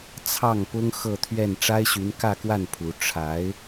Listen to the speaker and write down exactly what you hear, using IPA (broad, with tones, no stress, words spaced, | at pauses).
t͡sʰɑ˥˩ŋpʊ˥ŋ xɤ˥˧t̪ʰɥɛ˥˩n ʈ͡ʂa˥ɪ̯ɕy˧˥nkä˥˧kwa˥˩n pʰu˧˥ ʈ͡ʂʰa˧˥ɪ̯